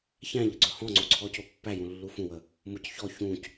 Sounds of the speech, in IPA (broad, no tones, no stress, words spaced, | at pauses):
çæ̃ʎə ɡ͡ǀɵhɔ̃ŋ͡ǀo ǀʰɔcopːæjũ lːufũwə | mʊc çɔ çũc